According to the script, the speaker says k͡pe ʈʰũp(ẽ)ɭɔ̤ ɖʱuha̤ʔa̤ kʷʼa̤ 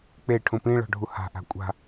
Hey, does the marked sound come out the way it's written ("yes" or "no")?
no